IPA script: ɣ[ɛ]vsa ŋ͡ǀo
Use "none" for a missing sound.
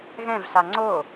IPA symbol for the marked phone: ɛ̃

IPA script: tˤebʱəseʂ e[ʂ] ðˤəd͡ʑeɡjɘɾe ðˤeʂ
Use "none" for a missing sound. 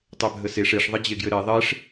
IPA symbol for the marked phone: ʂ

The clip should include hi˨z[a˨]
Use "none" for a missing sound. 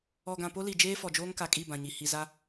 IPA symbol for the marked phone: a˦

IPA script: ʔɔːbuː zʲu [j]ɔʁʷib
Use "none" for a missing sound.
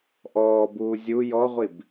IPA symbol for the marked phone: j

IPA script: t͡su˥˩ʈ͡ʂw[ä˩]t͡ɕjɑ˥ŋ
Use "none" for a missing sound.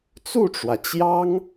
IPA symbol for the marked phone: ä˩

